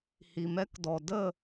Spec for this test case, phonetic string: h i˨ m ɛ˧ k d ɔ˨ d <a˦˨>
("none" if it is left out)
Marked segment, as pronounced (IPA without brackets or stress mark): ə˦˨